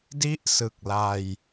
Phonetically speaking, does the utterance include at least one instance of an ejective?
no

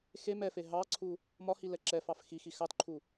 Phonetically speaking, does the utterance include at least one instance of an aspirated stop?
yes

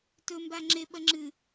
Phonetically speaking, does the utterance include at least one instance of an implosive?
yes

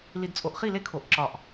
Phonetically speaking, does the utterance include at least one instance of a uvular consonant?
yes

